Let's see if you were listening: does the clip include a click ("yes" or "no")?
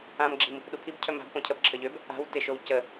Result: yes